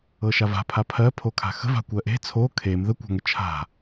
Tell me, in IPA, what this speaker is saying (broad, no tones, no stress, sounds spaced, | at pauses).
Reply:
ɤ ʃ a v a̤ pʰ a pʰ ɜ pʰ o kʰ a̤ x ə̤ v a̤ kʷ ɜ ʔ e̤ t͡sʰ o kʰ e m ð ə kʷ a̤ ŋ ə t͡ʃʰ a̤